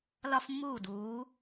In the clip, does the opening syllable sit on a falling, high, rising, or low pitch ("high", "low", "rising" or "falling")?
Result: high